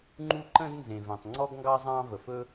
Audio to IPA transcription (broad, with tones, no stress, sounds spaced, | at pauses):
ŋ͡ǃ uː˥ ǃ ə̃˥ d n z ẽ˩ v ɛ̃˩ tˤ ŋ͡ǀ ɔ˥ ɡ ŋ ɡ ɑ˥ zˤ ɑ̃ː˥ v ə˩ f ɵ˥